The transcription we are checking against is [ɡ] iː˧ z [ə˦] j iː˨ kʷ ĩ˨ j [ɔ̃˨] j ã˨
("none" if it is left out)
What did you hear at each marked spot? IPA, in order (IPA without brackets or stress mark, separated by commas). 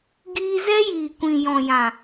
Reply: ɡ, ɛ˦, ɔ̃˨